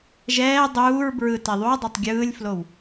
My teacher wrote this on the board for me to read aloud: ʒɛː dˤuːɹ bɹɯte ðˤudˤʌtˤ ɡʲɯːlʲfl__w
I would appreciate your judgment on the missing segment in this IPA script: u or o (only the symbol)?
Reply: o